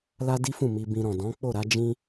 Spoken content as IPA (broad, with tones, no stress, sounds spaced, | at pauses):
l a˦ d i˦ f ũ˦˨ m i˧ b ĩ˧ ɾ ɔ̃˨ d ɔ̃˨˦ k͡p o˦˨ ɾ a˧ d͡ʒ ĩ˧